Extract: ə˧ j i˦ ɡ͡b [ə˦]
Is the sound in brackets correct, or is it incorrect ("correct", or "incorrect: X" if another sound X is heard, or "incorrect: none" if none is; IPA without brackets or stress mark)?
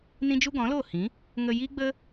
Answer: correct